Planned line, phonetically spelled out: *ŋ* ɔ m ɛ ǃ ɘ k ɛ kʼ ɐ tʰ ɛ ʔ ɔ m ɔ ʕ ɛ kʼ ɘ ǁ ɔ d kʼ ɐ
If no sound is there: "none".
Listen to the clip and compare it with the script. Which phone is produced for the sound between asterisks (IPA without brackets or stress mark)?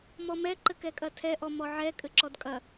m